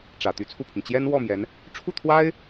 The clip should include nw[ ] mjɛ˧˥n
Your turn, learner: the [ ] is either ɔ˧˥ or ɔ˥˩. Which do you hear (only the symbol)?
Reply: ɔ˥˩